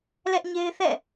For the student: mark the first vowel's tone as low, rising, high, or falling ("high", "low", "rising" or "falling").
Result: high